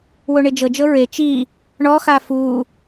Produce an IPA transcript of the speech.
w o ɳ e d͡ʒ ɤ d͡ʒ ɤ ɹ e t͡ʃ i | ɳ ɔ x a f u

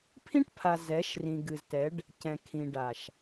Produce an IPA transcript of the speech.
pʰ ĩ˦ ʈ pʰ a˨ z ɛ˨˦ ʃ r ĩ˨ ɡ ɨ˨ z t ɛ˨˦ ɖ | c ɛ̃˨ kʰ ĩ˨ ɖ a˨ ʃ

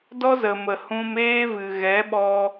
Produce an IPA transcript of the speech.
d ɔ˦ z ə˨ m ə˨ h ũ˧ m eː˦ v ɨ˨ ɣ ɛ˨˦ ɓ ɔ˧

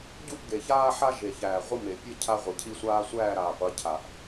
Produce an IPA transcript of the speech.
ɟ u˦ ʔ ɡ e˨ ç aː˦ ħ a˦ ʒ e˨ ç æː˨ ʁʷ ə˦ m e˨ pʲ ə˦ cʰ a˦ ʁʷ i˨ cʰ i˦ sʷ aː˦ sʷ æː˦˨ ɾ aː˨ qʷ ə˨˦ cʰ a˨ ʔ

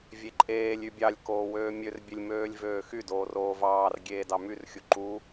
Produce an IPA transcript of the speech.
vʲ e ǃʼ eː lʲ y bʲ ɑ lʲ k oː w øː mʲ ø r bʲ e lʲ m øː lʲ v øː x y d oː r oː v ɑː r ɡʲ eː d ɑ m y r xʲ u ǃ u

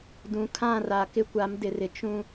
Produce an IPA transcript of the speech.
d ũ˨ kʰ ã˦˨ r a˨ k ɪ˦ kʷ a˨˦ m d ɪ˨ r ɪ˨ t͡ʃ ũ˦

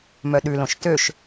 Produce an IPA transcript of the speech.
m œ ɗ ʉ l õ ʃ t ø ʃ

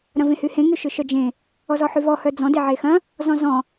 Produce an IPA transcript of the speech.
ɾ ɐ̃ v ẽ h y h ẽ ŋ y ʃ ʏ ʃ œ d͡ʒ ẽ | ɔ z ɔ ħ y v ɔ h œ d͡z ɔ̃ d e ʕ e x ɐ̃ | z ɔ̃ z ɔ̃

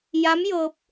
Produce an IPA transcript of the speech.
j a˧˥ m j ɤː˧ p̚

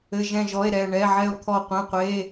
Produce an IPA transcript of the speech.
ɘ˩˧˩ ʒ ɛ̃˧˩ ʒ ɔ˩˧˩ e̯ ɾ ɛ˧˩ ɳ ɛ˩˧˩ ʕ ɛ˧˩ o̯ t̪ʰ ɔ˧˩ qʷ ẽ˩˧˩ qʷ e˩˧˩

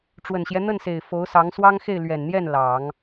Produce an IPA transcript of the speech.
ʈ͡ʂ w ə˨˩ n ɕ j ɛ˦ n̪ ə˥˩ n s e˨˩ ɪ̯ f o˧˥ ʊ̯ s ɑ˧˥ ŋ s w ɑ˥ ŋ x e˥˩ ɪ̯ l ɥ ɛ˨˩ n n̪ j ɛ˥˩ n l ɑ˨˩˦ ŋ

